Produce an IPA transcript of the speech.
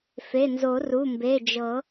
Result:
f e˩˧˩ n z o˨˩˦ r u˩˧˩ m b e˩˧˩ d͡ʒ ɤ˨˩˦

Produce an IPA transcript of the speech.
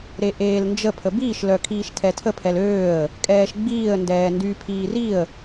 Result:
ɾ e ʔ eː l n d͡ʒ ə pʰ ə b iː ʃ l œ kʰ iː ʃ tʰ ɛ tʰ ə pʰ ɛ l øː ə̯ | kʼ ɛː ʃ ɡ͡b iː ə̯ n d ɛː n d y pʰ iː r i ə̯

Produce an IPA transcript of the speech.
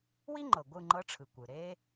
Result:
w i˥ ŋ͡ǃ ɤ˩ ɡʷ ɯ˥˨ ŋ͡ǃ ɤ˧˥ ʈ͡ʂʰ ɯ˩ kʷ ɯ˩ ɾ e˥

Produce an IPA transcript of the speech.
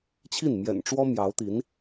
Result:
t͡ɕʰ i˥˩ n m j ɛ̰˨˩ n ʈ͡ʂ w ɔ˥ m j ɑ˧˥ ʊ̯ t̪ i˧˥ n

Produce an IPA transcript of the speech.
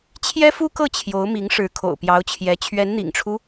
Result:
t͡ɕʰ j ɛ˥ f u˥ k ɤ˥˩ t͡ɕʰ j o˧˥ ʊ̯ m i˧˥ ŋ ʂ ɻ̩˧˥ kʰ o̰˨˩ ʊ̯ p j ɑ˧˥ ʊ̯ t͡ɕʰ j ɛ˧˥ t͡ɕʰ ɥ ɛ˧˥ n n̪ ḭ˨˩ ŋ ʈ͡ʂʰ u˦

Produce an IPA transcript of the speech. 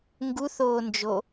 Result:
ŋ ɡ u θ oː n d͡ʒ o

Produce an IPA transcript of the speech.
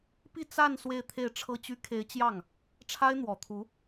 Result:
p i˥˧ t͡s a˥˧ n s w e˥˧ ɪ̯ t̪ʰ e˥˩ ɪ̯ ʈ͡ʂʰ ɤ˥ t͡ɕ y˥ kʰ e˧˥ ɪ̯ t͡ɕ j ɑ˥˩ ŋ | ʈ͡ʂʰ a˥ ɪ̯ n̪ w ɔ˨˩ t̪ʰ u˧˥

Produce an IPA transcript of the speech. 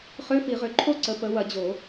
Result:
χ ø˧˥˧ f i˨˩˦ ʁ ø˨˦ ǃʰ o˥ ǀ ə˨˦ p ə˨˦ w ɐ˨˩˦ d͡ʑ o˨˩˦

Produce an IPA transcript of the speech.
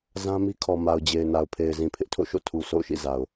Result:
z ã˦ m i˦ kʰ ɔ˨ m a˨ ʊ̯ d͡ʑ e˨ ɪ̯ n a˨ ʊ̯ pʰ e˨ ɪ̯ z ĩ˨ pʰ ɪ˦ ʔ tʰ o̰˦˨ ʃ o̰˦˨ tʰ u˨ sʰ o̰˦˨ ʊ̯ ʃ ḭ˦˨ z a˨ ʊ̯

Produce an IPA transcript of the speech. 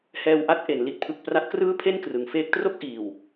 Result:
h ɛː˧ w ʔ a˦˥ t̚ ʔ e˩˦ n l i˨˩ t̚ pʰ ɯ˨˩ k̚ p r a˦˥ t̚ k r ɯː˥˩ pʰ e˥˩ n k r ɯ˩˦ ŋ f eː˦˥ k̚ t r o˥˩ k̚ ʔ iː˨˩ w

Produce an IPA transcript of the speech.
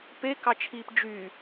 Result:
p e k ɑ t͡ʃʰ iː p d͡ʒ y

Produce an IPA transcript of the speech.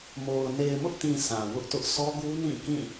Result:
m o˨ ʊ̯ n e˨ ɪ̯ m ʊ˦ ʔ t ĩ˨ sʰ ã˨ w ʊ˦ ʔ t ʊ˦ ʔ sʰ ɔ˦ ɡ u˦ n ĩ˦˨ k ĩ˦˨

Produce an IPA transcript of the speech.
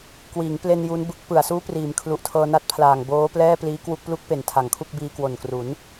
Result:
k w iː˩˦ ŋ p l e˧ n j u˦˥ n b ɯ˦˥ k̚ p ɯ˨˩ a̯ s uː˦˥ p r iː˩˦ m kʰ l u˨˩ ʔ tʰ ɤː˧ n a˦˥ t̚ pʰ l aː˨˩ ŋ b oː˦˥ p l ɛː˥˩ p l iː˦˥ k w u˥˩ k̚ p l u˦˥ k̚ p e˨˩ n tʰ a˨˩ ŋ kʰ u˥˩ k̚ b iː˧ k w o˨˩ n k r u˩˦ n

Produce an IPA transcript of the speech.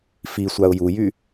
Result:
f i sʷ a ʊ̯ j u j y

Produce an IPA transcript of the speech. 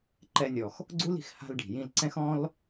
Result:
ǃ ɛ˧ nʲ ɔ˩ x | ɡ͡ǀ u˥ l i̤˩ x h a̤˥ l ɖ i̤˩ j ĩ˧ l ǀ ɛ̃˥ x ɔ̃˥ l

